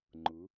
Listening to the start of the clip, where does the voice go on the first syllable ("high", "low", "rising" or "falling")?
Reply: rising